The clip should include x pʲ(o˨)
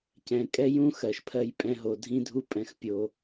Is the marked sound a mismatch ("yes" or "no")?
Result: no